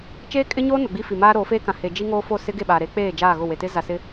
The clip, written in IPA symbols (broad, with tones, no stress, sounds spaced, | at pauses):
t͡ʃ eː˦ kʼ ɪ˦ ɲ oː˦ n ʊ˨ ɡ͡b i˦ f i˨ m aː˦ ɾ oː˨˦ f eː˦ k ã˨ h e˨ d͡ʒ i˦ ŋ oː˦ f o˦˨ s ɪ˦ ɡ e˦˨ ɓ aː˨ ɾ e˨˦ k͡p eː˦˨ d͡ʒ aː˦˨ ɣ ʊ˦˨ w e˨ t ɪ˦ z a˨ s ɪ˦